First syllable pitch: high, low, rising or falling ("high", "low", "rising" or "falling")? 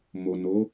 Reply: low